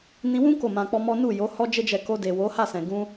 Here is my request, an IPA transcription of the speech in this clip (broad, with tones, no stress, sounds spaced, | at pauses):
n ĩ˧ w ũ˦ k o˦˨ m ã˧ k͡p ɔ˦ m ɔ˦ n u˦˨ j o˨˦ h ɔ˦ d͡ʒ e˦ d͡ʒ ɛ˧ k o˧ d e˨ w o˨˦ h a˦˨ s ɛ̃˨ ɡ ũ˧